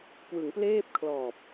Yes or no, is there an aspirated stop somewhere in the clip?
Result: yes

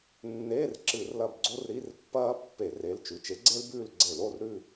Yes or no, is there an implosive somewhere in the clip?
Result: no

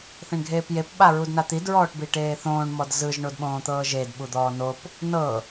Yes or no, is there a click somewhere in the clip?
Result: no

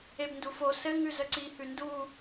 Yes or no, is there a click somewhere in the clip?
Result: yes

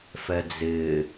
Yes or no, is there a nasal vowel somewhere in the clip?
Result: no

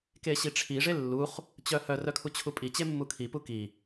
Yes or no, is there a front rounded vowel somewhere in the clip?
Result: yes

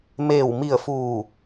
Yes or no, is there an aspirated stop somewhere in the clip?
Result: no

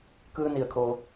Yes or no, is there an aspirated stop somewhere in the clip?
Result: yes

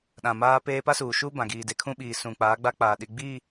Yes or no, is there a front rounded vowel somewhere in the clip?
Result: no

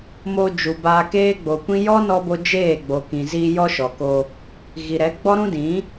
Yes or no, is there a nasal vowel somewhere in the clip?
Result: yes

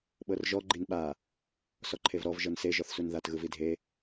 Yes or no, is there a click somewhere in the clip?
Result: yes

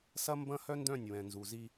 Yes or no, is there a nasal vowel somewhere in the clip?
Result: yes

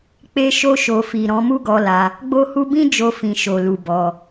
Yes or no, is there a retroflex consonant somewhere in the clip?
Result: no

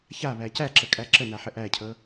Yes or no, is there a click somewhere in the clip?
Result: yes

